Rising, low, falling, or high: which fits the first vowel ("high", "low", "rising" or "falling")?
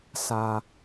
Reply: high